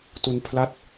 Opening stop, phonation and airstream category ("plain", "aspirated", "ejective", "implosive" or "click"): plain